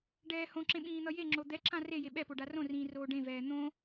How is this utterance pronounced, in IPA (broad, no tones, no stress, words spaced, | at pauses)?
ɖɛːhõǁẽ ɓĩːn̪ʌjeŋ͡ǁo d̪ɛǁã re jeɓɛpo ɖarõrĩː roːɖẽvɛː n̪õ